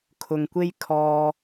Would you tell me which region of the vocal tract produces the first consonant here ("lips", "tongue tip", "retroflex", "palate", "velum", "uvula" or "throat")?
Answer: velum